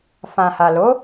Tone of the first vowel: low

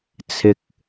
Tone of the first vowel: low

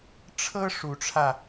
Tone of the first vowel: high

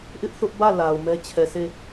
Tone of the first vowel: high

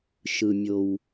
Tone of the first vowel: low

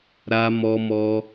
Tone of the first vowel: high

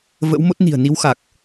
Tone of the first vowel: rising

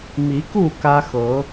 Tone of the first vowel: rising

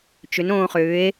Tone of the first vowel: rising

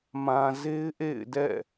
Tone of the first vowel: low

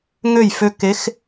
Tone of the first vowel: falling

